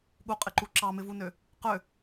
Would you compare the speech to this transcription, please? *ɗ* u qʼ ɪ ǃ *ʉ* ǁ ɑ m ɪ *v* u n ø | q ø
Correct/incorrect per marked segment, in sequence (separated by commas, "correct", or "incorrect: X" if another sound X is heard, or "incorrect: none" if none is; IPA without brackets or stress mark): incorrect: ɠ, incorrect: u, correct